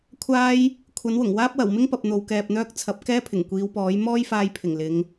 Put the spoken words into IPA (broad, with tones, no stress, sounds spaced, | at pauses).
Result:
kʷʰ aː˥ j | kʷʰ ɐ˨˥ n w ʊ˨˩ ŋ w aː˥ p̚ w ɐ˨˩ w m ɪ˥ ŋ p ɐ˨ p̚ n̪ o˨ w k ɛː˨ p̚ n̪ œː˥ k̚ t͡sʰ ɐ˨˥ p̚ k ɛː˥ pʰ ɪ˨˩ ŋ kʷ iː˨˧ w p ɔː˨˥ j m ɔː˥ j f aː˧ j pʰ ɪ˨˩ ŋ l ɪ˨˧ ŋ